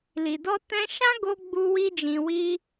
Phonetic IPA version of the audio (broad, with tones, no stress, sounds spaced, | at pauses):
l i˨ d ɔ˧ t ɛ̃˧ ʃ ã˦ ɡ o˧ ɡ͡b u˧ w i˧ d͡ʒ ĩ˨ w i˧